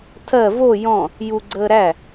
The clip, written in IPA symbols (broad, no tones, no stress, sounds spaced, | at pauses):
tʰ ɜ v o j ɔ̃ | j u ɡ͡ǀ əː ɾ æ